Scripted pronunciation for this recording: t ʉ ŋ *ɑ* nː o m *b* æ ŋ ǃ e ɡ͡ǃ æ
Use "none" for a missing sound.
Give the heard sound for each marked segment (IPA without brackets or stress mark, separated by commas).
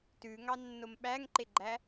ɑ, ɓ